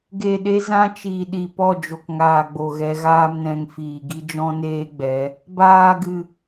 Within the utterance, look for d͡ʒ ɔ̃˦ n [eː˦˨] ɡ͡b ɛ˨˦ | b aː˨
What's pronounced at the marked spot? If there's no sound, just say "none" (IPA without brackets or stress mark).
eː˦